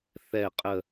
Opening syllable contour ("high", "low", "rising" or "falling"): falling